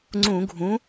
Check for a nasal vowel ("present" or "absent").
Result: present